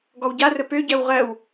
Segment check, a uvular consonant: present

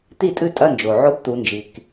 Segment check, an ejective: present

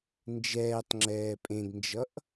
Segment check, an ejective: present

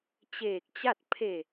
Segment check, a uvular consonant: absent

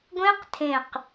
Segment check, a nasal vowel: present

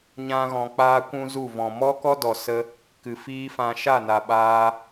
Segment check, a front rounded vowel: absent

